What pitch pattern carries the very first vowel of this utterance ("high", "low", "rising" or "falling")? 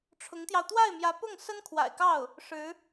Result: rising